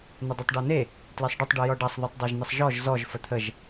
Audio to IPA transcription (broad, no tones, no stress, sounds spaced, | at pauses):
n̪ ə dˤ e tˤ ɖ a n̪ e | t l e sˤ ɖ ɘ tˤ ɖ u j ɔ ɖ a sˤ ð u tˤ dˤ a ʒ n̪ ə sˤ ʒ ɔ ʒ z ɔ ʒ f ə t̪ʰ ə ʒ